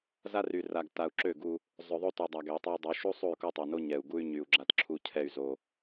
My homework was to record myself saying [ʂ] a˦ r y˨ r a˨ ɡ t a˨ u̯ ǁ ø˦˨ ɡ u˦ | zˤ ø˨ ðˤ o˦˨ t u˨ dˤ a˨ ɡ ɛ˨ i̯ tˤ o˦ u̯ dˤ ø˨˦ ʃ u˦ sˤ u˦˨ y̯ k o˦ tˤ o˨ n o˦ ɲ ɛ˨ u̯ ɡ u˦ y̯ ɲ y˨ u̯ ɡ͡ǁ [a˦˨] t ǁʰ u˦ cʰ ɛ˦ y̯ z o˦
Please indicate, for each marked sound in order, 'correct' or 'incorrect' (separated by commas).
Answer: incorrect, incorrect